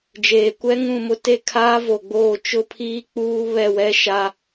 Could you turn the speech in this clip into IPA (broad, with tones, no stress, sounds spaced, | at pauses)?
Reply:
d͡ʒ eː˨ kʷ ɛ˦ ŋ ũ˦˨ m ʊ˦ t e˦˨ kʰ aː˦ v o˨ ɡ͡b oː˦˨ t͡ʃ ʊ˦ pʰ iː˦ k͡p uː˦ β ɛ˦˨ w ɛ˦ ʃ a˦